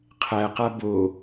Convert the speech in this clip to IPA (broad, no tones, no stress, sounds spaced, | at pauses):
qʰ æ q a b o